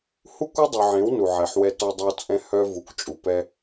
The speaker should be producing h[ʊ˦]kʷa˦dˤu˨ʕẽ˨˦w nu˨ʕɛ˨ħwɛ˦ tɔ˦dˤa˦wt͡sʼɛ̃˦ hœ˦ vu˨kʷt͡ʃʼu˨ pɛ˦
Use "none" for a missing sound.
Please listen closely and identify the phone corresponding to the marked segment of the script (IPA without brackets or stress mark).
u˦